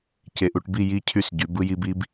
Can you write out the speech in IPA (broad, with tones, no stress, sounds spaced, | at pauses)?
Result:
c e˨ ʔ u˨ ʈ b i˦˨ j i˦ cʰ y˦˨ s ɟ y˨˦ b ɯ˦ j i˦ b i˦ b